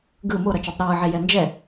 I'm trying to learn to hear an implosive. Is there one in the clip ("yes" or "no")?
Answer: no